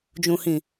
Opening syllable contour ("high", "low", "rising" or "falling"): low